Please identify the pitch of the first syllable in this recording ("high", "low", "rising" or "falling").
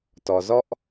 low